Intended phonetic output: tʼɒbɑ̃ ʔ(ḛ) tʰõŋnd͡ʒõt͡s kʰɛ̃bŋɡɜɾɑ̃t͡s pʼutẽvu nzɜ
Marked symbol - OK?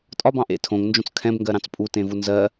yes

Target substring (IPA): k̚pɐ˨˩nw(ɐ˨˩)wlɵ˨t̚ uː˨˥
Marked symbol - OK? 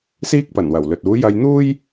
yes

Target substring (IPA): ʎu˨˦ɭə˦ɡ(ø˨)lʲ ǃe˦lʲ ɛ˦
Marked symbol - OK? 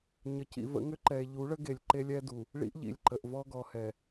no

